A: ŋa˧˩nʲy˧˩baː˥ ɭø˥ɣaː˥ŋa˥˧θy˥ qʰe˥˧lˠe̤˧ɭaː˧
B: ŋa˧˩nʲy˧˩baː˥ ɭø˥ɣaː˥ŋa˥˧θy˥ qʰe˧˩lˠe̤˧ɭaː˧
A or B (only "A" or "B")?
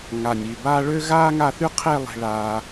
A